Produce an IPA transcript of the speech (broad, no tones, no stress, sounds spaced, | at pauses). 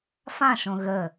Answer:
f ã ʃ õ ɣ ə